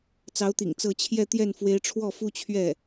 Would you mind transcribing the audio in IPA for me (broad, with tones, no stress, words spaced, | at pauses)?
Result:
t͡sɑ˧˥ʊ̯t̪ḭ˨˩ŋ t͡sɤ˥˧ t͡ɕʰjɛ˥˧t̪jɛ˥˩n fwe˧˥ɪ̯ʈ͡ʂʰwɔ˥˩ fu˥t͡ɕʰɥɛ˥˩